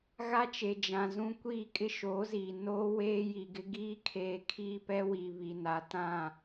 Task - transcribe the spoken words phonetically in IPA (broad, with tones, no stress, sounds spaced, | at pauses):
ɣ a˦ t͡ʃ e˨ d͡ʒ ã˨ z ũ˦ kʷ iː˦˨ kʼ ɪ˦ ʃ oː˨˦ z iː˨ n oː˦ w eː˦ j i˨ ɡ ɪ˦ ɡ iː˦ kʰ eː˨ kʰ iː˦ p ɛ˦ w i˨ β i˨ n a˨ t ã˦˨